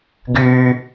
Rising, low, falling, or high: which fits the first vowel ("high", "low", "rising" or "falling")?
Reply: high